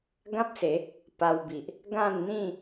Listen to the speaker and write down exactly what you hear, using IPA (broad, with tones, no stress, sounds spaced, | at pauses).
ɡ ã˦ p̚ s e˨˦ | p a˧ w b i˨ ʔ | ɡ ã˥˧ n n̪ ĩ˥˧